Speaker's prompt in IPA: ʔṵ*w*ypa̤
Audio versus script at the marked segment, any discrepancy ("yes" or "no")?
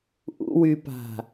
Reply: no